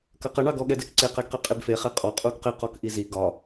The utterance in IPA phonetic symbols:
k ɐ q ɐ ɳ ɑ ɡ ɔ ɠ ɛ d ɛ k ǀ e q ɛ ɡ q e qʼ e b f e χ e qʼ ɔ qʼ u ɡ q e q ɔ k ʔ i z i ɡ ɒ

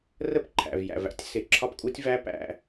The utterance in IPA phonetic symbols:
r ə˥ p ǃʰ æ̰˩ v j æ̰˩ v æ̰˥ tʲ s ɪ˩ ǁʰ ɒ˥ p kʼ u˥ tʲ v æ˥ p æ̰˧

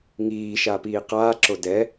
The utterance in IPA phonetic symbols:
ŋ iː ʃ a p iː q aː ǁ o d ɛ

